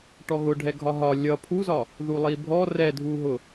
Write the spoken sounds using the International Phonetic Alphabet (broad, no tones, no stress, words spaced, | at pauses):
ʈɔɣʊ ɖʱɛɡʱɒɦɒ lʲʌ pʰuzɒ | ðulˠibʱɔ rɛdʱuɦʊ